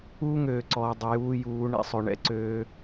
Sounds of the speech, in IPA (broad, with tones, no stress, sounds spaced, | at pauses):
uː˦ ŋ øː˨ ǀ ɔː˨ dˤ ʏ˨ j uː˧ j uː˨˦ ɳ ɛ̰˦ sˤ ø˨ ɳ ɛ̰˦ ǀ øː˧